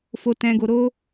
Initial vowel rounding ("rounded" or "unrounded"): rounded